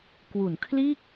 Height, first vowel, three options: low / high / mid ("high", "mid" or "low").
high